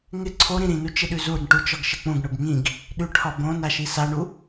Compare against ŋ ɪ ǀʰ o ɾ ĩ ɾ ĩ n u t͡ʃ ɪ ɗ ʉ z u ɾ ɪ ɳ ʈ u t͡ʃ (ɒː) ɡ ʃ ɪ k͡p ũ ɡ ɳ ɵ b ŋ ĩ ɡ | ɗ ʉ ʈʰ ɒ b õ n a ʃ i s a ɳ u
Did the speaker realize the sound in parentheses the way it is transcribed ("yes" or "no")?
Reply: no